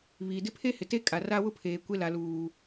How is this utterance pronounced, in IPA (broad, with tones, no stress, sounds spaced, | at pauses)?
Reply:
β iː˨ d ɪ˦ pʰ e˦ h ɪ˨ t e˦ kʼ a˨ r a˦ w ʊ˦ pʰ eː˨ kʷ e˦ l a˨ l uː˨